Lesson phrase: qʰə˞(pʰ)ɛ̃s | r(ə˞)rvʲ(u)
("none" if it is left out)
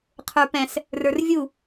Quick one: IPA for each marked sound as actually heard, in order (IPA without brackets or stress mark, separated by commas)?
p, ə˞, u